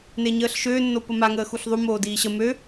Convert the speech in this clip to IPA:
neɲəːɬʃøːnːo pəmaŋəː xuɬðˤumoː diːɕə mø

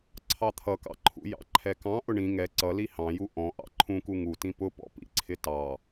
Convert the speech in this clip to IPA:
ǀʰɑt̪ʰʌkɑ̰ǃʰṵ jɑ̰ǃʰɛkɑ̃ ʔʊɳĩ ŋɛ ǀʌli hɑ̃ju ʔɔ̃ ʔɑ̰ǃʰũku ŋutĩ pʊpɔ̰pḭ ǀʰɪtɑ

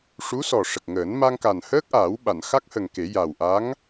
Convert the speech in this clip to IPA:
ʂu˧˥sɔ˨˩ʂə˨˩k̚ŋəː˨˩˦n ma˧ŋka˨˩nhəː˦˥k̚ʔaː˨˩˦w ɓa˨˩˨nxa˦˥k̚hə˨˩ŋ ke˨˩˦ja˨˩wʔa˧˥ŋ

